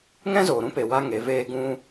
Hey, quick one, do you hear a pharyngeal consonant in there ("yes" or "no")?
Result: no